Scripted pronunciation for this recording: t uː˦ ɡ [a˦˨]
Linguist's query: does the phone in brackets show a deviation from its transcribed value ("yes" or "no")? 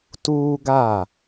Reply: no